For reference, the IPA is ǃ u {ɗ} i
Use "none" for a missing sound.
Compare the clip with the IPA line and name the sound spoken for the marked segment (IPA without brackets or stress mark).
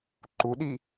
ɗ